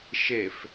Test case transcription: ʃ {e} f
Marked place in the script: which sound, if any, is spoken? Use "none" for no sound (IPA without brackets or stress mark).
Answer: e